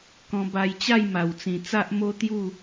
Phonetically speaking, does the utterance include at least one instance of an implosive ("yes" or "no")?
no